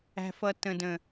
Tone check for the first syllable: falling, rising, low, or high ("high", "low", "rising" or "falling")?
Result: low